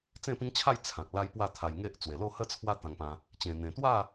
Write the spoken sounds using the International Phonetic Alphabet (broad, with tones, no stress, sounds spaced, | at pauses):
t͡s ẽ˥˧ p ĩ˦ ŋ t͡ɕʰ a˥˧ j t͡sʰ ã˨ k̚ l a˦ j p w a˥˧ t̪ʰ a˧ j ŋ e˦ ʔ t͡s w e˨˩ l o˥˧ h ə˥˧ t͡sʰ w a˦ t̪ ã˧ ŋ p ã˧ | t͡ɕ ẽ˨˩ n̪ ẽ˨˩ t̪ w a˥˧